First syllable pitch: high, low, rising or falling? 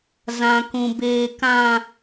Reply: low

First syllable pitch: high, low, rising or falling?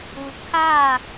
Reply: low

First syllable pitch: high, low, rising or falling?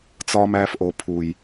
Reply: high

